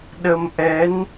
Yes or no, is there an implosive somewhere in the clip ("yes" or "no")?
yes